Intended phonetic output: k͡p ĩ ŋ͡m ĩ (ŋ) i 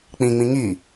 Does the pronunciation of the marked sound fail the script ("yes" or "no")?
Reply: no